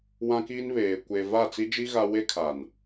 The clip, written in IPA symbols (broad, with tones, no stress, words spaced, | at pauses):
wã˦kiː˦nβeː˨ kʷe˨ va˦˨t͡si˦d͡ʒi˦ ɣa˦ we˦ kʰa˨n